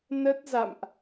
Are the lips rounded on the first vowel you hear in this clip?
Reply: no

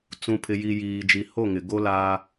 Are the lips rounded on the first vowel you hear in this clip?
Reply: yes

